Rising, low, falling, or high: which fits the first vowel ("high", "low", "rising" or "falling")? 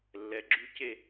rising